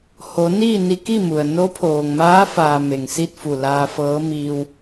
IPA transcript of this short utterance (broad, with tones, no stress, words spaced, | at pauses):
ho˩˧niː˥˨ni˧ki˥˨ mu˩ə̯ no˧˥pʰoː˩ŋmaː˧˥faː˩ me˩ŋsi˥˨t̚fu˧˩ laː˧fɤː˧˥miː˧w